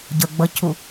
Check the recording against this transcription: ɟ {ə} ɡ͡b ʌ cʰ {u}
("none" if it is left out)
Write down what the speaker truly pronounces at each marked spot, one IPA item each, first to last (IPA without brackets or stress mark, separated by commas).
ə, u